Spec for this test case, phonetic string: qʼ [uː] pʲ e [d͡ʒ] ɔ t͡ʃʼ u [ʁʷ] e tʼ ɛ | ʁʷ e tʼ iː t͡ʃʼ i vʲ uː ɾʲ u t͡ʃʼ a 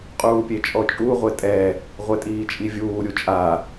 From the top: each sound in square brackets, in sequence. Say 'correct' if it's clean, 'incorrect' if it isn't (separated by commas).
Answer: correct, incorrect, correct